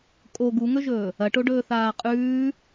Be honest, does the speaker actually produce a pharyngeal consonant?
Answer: no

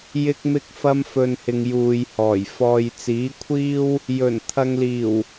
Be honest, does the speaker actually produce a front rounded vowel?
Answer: no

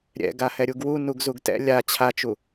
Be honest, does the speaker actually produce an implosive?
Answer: no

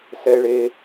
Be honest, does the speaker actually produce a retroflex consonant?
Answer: yes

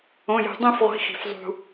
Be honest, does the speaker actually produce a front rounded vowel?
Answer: no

